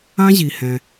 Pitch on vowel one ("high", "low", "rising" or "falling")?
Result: high